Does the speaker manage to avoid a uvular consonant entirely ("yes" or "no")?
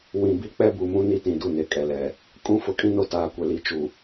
yes